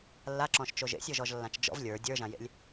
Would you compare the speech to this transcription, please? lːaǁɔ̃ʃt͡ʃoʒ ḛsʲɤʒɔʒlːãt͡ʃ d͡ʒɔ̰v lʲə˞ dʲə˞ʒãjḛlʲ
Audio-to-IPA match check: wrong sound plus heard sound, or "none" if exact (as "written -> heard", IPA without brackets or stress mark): none